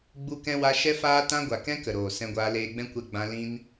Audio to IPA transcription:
ɡ͡b u˧ k ɛ̃˧ w a˧ ʃ ɛ˦ f aː˦ t ã˦ ɡʷ a˨ k ɛ̃˧ k ə˨ ɾ oː˨ s ɛ̃˧ ɡʷ aː˧ l eː˧ ɡ͡b ɛ̃˦ kʷ ɛ˧ ɡ͡b ã˧ l ĩ˧ n

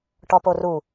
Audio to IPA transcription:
ʈ ɔ p o r u

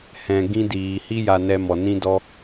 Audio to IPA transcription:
h ɛ̃˨ ɡ ĩ˧ d iː˨ h i˦ j a˧ n ɛ˧ m ɔ˨ n ĩ˦ d ɔ˦

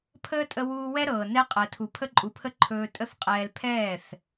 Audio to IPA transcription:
pʰ əː˦ tʼ ə˧ w uː˧ w ɛ˦ ɾ ɤː˨ n ɛ˦ qʼ əː˨ tʰ u˨ pʰ ə˧ ǃʼ u˨ pʰ ə˧ ǃʰ ɵː˧ tʼ ə˦ θ qʼ ɛː˧ l pʰ ɛː˦˨ θ

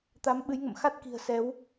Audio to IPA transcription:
t̪ a˨˦ m ɓ ɨ˨˦ j ŋ ə̰˧˨ m x a˦˥ t̚ k i̤˨˩ ə̯ s ɛ˨˦ w

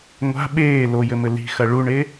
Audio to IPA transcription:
ŋʷ a̤ ɓ eː l o j ɘ m ɘ l i̤ x ɐ ɭ u ɳ e

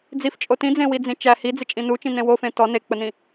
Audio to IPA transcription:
d͡z i f t͡ʃʼ o t ĩ d͡z ẽ w i d͡z ĩ t͡ʃ æ h i d͡z ɪ t͡ʃʼ ĩ n u t͡ʃ ĩ n ẽ w o f ẽ t ɔ n e k͡p ə n ĩ

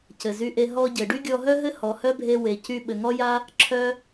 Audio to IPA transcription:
c ɘ˩ z y˧ ʔ e˧ ɦ ɔ˧ ɟ ɘ˩ ɖ y˥ ɡʲ ɔ˧ ɦ œ˥ ɦ ɘ˥ h ɔ˩ h œ˥ bʱ e˧ w e˩ c y˧ ɓ ɘ˩ ŋ ɔ˥ j a˥ | ǁʰ œ˧

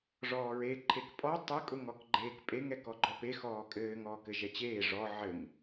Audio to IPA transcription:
ʐ ɔː ɹ e ǃʰ e k pʼ ɔ tˤ ɘ kʼ ʊ ŋ ɔ k ɡ͡ǃ eː k pʼ e ŋ ɛ k ɔ ɡ͡ǃ ɔ p e x ɔː kʼ ɘː ŋ ɔː k ɘ ʒ ɛ t͡ɕ eː ʐ ɔ ʕ ɘ ŋ

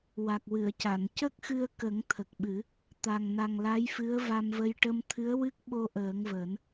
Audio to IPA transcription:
w a˨˩ k̚ w ɨ˨˩˨ ə̯ c a˨˩˨ n c ə˦˥ k̚ x ɨ˧ ə̯ k ə˨˩˦ ŋ t̪ʰ ə˨˩ k̚ ɓ ɨ˨˩˦ | t̪ a˨˩ ŋ n a˨˩ ŋ l a˧˥ j f ɨ˧˥ ə̯ v a˧ m v ə˧ j ʈ ə˧ m t̪ʰ ɨ˧˥ ə̯ w ɨ˦˥ k̚ ɓ o˧ ʔ əː˨˩˦ ŋ v əː˨˩˦ n

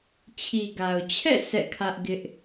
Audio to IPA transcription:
t͡ɕʰ i˨ ɡ a˨ ʊ̯ t͡ɕʰ ɛ̰˦˨ s ɛ̰˦˨ kʰ ä˦ ʔ ɡ ɪ˦ ʔ

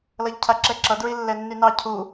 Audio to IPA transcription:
l ʌ ʎ cʰ a ǁ ɛ ǁ ʌ d ɹ i lː ɛ nː y n ɑ cʰ u

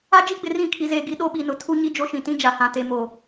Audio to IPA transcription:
a˦ d͡ʒ i˦ ɡ͡b ɪ˨ r ĩ˦˨ kʰ i˨ z eː˨ ɡ i˨ ɗ o˦ ɓ i˨ n ʊ˨ tʰ u˦ ɲ i˦ d͡ʒ o˦ ʃ ĩ˨ t ĩ˦ d͡ʒ a˨ h ã˨ t e˨ m o˨

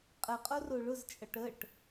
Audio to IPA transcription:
qʼ ə qʼ o r o ɭ ʊ z t͡ʃʼ ʌ ʈ ə ʈ

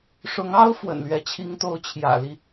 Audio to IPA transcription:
ʂ ʊ˧˥ ŋ ɑ˥ ʊ̯ f w ə̰˨˩ n l ɥ ɛ˧˥ t͡ɕʰ i˧˥ ŋ t̪ o˧˥ ʊ̯ t͡ɕʰ j ä̰˨˩ l i˦

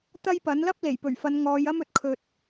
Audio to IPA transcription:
t̪ ɐ˥ j p ɐ˨˥ n l ɐ˥ p̚ l e˨˩ j p ɵ˨˩ ɥ f ɐ˨˧ n ŋ ɔː˨˧ j ɐ˥ m ɵ˨ t̚ kʰ ɵ˧ t̚

